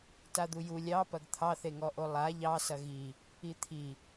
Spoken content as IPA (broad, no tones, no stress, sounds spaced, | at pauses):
t a d̪ u j u lʲ ɑ p ɐ ɡ t̪ʰ ɑ θ e ŋ ɔ ʔ o lˠ a ʎ ɑ s ɐ ɣ i | i t̪ʰ i